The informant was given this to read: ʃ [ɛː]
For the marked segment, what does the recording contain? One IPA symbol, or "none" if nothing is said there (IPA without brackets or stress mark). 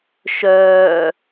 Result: œː